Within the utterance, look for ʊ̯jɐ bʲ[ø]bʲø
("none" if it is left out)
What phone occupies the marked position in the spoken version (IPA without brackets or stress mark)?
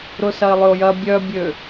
œ